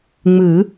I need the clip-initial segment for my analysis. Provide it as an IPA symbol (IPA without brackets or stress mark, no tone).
ŋ͡m